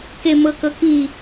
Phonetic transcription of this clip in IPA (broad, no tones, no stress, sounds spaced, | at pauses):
k e m ɤ k ɤ k i